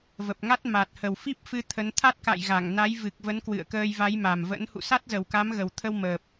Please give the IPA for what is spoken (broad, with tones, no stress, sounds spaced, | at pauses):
v ə˨˩ p̚ ŋ a˦˥ t̚ m a˨˩ t̚ h ə˨˩ w f i˦˥ p̚ f ɨ˧ t̪ʰ ə˨˦ n t̪ʰ a˦˥ t̚ k a̰˧˨ j ɣ a˧˩ ŋ n a˨˦ j v ɨ˨˩ k̚ v ə˨˦ n k w ɨ̰˧˨ ə̯ k əː˧ j v a˨˦ j m a˨˩ m v ə̰˧˥ n h ṵ˧˨ s a˦˥ t̚ z ə˨˩ w k a˨˦ m ɣ ə˨˩ w t̪ʰ ə˧ w m əː˨˩ p̚